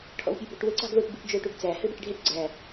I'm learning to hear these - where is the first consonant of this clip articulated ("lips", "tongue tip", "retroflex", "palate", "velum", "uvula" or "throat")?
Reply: retroflex